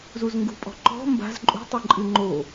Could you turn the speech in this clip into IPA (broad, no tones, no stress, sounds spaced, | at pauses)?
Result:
z u z ŋ ɡ ṳ pʼ ɔ̤ ǃ ɔ̤ m b a̤ z ǃʼ ṳ tˤ ɨ ǃʼ ɨ ŋ͡ǃ o